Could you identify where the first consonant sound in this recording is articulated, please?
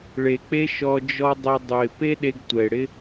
retroflex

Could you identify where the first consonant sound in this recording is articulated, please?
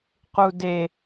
uvular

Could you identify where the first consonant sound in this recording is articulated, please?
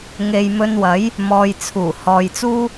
velar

